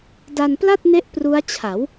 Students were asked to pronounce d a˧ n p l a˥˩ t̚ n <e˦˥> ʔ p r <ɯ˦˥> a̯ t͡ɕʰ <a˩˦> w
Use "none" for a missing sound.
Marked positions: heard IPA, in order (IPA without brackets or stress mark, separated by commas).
e˦˥, u˦˥, a˩˦